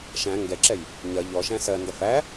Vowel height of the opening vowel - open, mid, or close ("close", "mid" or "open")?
open